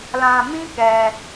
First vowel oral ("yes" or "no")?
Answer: no